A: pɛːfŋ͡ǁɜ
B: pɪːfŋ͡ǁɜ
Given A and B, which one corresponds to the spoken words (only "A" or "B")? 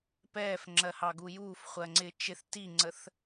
A